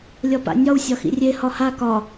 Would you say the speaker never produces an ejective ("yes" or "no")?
yes